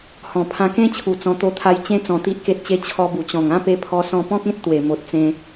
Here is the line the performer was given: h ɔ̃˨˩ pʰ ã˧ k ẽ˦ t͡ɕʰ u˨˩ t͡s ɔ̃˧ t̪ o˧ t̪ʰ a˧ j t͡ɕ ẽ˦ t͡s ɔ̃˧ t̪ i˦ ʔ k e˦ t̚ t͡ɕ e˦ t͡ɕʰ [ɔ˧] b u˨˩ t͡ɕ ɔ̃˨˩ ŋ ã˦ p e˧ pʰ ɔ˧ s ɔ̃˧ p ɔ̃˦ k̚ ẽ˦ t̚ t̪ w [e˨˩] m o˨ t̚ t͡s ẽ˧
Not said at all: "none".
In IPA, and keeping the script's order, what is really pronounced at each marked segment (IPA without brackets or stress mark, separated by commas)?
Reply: ɔ˧, e˨˩